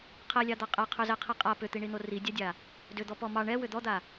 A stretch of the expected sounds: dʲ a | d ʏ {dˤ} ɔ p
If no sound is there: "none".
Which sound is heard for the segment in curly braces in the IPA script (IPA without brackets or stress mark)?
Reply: d̪